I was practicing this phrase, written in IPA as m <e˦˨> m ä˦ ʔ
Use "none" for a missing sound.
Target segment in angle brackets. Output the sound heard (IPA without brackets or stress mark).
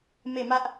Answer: e˦˨